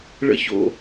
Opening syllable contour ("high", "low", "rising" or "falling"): rising